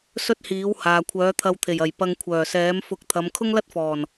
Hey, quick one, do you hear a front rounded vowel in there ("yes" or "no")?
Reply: yes